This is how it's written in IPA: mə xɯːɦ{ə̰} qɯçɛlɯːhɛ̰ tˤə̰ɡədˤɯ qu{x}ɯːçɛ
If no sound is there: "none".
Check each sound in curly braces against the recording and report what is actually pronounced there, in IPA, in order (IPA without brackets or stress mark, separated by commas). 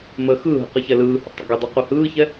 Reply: ə̰, h